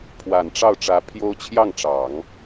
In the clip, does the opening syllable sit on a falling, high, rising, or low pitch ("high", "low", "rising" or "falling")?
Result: low